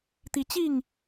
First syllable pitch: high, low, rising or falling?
rising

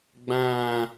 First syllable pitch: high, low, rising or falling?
falling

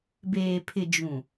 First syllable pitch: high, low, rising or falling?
low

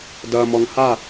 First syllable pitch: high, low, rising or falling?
low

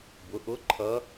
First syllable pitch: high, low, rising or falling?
rising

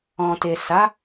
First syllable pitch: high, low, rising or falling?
low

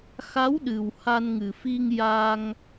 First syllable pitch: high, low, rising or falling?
rising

